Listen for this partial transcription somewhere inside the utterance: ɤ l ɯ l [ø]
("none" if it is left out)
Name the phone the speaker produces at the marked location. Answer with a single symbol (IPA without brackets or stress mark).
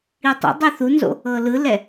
ɛ